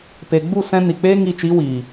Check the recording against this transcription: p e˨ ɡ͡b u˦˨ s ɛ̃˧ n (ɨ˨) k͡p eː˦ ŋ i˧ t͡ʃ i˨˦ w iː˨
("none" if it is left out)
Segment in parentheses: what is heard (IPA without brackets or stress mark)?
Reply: i˨